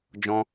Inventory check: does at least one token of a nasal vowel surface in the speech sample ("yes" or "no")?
yes